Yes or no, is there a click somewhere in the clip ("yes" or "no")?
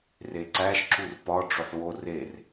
yes